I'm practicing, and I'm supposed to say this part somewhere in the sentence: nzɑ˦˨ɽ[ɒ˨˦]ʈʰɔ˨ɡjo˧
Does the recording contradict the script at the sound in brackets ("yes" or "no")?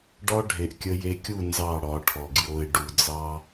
no